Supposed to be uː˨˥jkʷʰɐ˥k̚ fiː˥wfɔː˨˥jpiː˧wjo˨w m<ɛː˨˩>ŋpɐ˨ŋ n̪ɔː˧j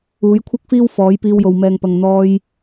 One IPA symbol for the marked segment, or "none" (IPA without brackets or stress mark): ɛː˨